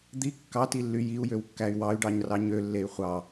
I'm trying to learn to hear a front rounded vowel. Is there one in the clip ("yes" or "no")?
yes